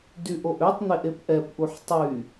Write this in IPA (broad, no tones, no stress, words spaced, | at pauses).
dyʔoʔøtˤn̪eʔ epʔɛpʔuħ tˤy